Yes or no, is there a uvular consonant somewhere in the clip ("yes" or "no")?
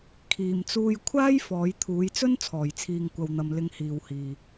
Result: no